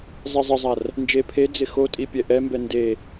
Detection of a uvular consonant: absent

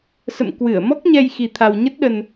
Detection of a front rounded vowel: absent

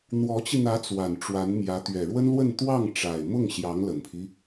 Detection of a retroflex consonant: present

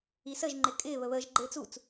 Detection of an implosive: absent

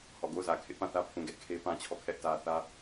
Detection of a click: absent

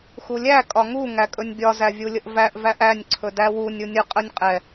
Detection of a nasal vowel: absent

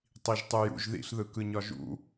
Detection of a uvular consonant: absent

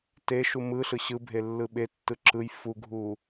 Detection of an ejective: absent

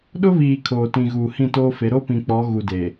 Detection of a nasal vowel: present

